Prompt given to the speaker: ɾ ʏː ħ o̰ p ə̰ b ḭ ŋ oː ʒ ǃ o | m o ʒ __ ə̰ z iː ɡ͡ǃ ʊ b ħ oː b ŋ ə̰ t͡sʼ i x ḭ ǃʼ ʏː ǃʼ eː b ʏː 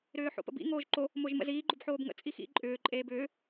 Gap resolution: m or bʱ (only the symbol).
m